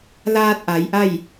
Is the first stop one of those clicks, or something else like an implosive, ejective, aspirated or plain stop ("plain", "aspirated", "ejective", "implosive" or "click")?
plain